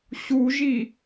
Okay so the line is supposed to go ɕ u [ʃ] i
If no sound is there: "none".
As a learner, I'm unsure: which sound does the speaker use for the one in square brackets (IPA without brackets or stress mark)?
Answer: ʒ